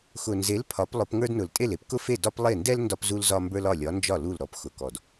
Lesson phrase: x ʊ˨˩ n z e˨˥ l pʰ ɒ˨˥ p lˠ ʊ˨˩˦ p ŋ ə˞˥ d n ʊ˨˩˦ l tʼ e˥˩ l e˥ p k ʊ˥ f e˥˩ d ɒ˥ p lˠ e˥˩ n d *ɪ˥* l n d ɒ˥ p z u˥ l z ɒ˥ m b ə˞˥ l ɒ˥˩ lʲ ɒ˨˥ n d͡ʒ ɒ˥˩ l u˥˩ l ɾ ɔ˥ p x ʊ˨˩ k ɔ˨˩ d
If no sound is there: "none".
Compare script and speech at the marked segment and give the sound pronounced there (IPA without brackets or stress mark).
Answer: ɛ˥